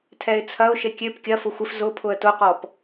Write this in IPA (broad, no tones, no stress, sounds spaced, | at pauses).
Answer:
tʰ ɛ ɪ̯ t͡sʰ ɐ ʊ̯ ʃ e kʲ ø p kʲ ɐ f ʊ xʷ ɪ f z ʊ pʰ ʊ ə̯ t ʊ q ɔ p